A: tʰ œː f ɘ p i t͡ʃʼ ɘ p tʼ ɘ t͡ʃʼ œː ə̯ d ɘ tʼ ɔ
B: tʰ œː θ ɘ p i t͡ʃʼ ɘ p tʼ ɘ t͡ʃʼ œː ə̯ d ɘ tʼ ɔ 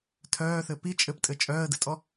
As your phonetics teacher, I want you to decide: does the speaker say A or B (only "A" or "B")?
B